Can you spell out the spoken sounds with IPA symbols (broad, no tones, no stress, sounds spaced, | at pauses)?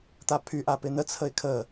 t̪ a pʰ y ʔ a p ɪ n̪ ə t͡sʰ ə ɪ̯ kʰ ə